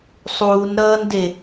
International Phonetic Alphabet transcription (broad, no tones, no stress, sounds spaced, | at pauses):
sˤ uː n ɾ ʌː n d e